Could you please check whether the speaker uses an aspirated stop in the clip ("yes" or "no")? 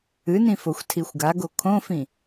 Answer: yes